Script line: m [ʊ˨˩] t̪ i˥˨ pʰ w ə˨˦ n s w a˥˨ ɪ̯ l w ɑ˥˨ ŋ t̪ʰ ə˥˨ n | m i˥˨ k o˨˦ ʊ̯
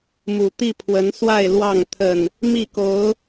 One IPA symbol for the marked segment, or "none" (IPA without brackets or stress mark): u˨˩